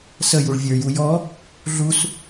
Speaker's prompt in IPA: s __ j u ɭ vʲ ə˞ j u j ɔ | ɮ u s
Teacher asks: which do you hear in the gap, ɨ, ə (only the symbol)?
ə